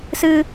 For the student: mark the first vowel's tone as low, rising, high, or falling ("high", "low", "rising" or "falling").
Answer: high